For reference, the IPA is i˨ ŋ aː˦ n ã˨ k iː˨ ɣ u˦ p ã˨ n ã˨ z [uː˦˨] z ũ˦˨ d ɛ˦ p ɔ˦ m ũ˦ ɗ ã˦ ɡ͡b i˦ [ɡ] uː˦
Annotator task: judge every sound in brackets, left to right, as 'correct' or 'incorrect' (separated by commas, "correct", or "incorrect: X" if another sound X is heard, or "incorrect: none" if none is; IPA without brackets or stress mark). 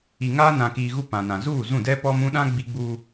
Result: correct, incorrect: ɡ͡b